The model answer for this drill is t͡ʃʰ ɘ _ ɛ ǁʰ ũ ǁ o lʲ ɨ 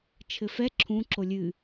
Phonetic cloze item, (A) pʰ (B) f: B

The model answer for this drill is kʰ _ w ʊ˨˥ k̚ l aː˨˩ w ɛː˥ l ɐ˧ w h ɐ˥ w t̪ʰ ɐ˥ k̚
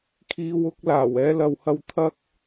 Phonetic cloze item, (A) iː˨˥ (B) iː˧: B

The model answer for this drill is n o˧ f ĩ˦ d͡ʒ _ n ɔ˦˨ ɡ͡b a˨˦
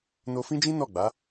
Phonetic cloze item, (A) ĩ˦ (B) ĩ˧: A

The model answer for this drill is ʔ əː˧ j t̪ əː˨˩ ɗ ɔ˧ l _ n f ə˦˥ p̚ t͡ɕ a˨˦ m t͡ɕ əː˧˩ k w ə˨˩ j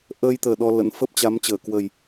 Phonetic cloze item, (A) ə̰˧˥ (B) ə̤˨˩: A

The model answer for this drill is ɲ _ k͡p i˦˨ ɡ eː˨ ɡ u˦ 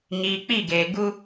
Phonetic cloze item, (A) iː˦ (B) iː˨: B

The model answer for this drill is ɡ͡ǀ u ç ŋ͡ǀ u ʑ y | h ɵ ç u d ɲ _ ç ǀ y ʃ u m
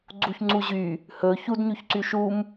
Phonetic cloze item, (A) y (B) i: A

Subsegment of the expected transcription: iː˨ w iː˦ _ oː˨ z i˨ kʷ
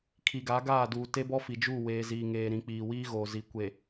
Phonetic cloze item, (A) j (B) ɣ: B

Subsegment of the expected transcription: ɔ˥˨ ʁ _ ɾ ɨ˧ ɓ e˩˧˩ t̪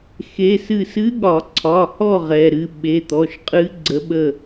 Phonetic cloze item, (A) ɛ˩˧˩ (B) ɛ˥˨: A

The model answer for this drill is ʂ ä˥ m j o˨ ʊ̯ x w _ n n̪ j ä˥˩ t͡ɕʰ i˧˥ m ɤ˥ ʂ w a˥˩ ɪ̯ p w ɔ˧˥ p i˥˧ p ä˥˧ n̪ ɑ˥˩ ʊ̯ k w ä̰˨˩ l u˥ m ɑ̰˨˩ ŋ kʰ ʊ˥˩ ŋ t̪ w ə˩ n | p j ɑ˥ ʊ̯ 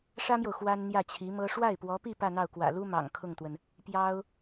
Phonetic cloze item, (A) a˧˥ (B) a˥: B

